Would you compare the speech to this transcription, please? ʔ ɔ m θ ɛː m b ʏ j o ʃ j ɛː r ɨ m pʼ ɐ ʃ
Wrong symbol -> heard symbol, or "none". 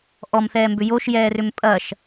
ɨ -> ʏ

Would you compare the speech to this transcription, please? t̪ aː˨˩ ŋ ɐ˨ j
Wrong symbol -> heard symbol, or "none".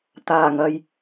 none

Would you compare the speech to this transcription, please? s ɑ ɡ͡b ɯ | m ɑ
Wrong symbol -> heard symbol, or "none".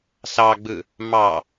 none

